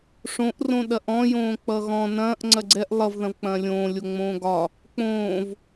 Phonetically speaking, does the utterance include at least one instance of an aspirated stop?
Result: no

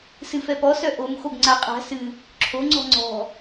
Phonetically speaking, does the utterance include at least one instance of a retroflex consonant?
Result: no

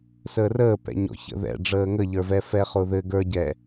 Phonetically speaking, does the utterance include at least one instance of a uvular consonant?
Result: yes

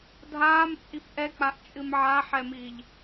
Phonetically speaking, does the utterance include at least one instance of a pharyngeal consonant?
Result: yes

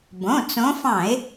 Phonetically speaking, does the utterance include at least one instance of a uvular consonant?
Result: no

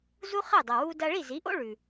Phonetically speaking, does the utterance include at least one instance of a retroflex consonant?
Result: yes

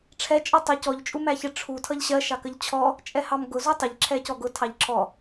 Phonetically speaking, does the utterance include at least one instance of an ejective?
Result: yes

